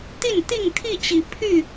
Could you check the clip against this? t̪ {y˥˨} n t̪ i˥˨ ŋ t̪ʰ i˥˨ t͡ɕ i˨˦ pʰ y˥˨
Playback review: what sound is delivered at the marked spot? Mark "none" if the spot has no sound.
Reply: i˥˨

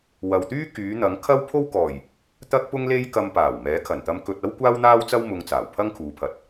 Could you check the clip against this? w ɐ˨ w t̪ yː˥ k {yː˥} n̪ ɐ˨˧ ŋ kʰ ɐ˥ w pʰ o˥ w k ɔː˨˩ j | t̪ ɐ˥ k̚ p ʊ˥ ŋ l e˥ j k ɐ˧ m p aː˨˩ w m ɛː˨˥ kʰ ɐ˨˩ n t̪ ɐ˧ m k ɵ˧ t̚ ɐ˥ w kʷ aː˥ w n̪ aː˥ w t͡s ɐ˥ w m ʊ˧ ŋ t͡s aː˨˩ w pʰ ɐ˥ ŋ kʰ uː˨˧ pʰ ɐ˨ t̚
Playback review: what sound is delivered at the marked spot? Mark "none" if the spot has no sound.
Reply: yː˨˧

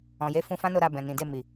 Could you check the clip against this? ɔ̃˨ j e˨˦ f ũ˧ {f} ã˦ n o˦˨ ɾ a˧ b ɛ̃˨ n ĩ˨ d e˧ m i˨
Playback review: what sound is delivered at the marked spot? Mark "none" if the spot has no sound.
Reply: f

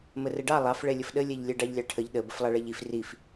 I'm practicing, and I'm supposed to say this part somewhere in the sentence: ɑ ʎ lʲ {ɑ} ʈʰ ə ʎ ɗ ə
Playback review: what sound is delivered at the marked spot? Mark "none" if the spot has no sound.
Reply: ɑ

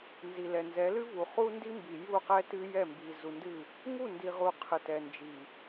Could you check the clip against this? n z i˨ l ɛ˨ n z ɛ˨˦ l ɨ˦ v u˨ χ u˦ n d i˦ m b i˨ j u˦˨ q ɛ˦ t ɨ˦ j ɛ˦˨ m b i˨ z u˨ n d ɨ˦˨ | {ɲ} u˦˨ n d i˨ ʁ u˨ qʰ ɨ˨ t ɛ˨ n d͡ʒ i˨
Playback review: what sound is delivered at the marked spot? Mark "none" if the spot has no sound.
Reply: ŋ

